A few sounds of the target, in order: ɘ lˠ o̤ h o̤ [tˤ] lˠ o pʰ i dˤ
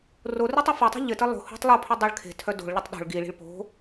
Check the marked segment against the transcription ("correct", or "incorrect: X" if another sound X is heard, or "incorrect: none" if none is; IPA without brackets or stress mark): correct